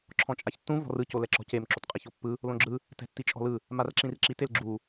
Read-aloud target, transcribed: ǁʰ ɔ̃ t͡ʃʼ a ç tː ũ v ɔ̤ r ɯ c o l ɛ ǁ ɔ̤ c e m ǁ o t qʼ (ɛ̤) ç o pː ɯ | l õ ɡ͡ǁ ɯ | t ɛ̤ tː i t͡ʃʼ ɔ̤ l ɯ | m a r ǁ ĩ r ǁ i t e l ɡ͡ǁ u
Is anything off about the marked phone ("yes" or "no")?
yes